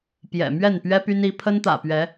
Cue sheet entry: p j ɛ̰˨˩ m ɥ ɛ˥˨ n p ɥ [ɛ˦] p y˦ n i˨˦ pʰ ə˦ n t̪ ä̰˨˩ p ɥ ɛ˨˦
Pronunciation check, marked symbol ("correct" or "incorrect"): correct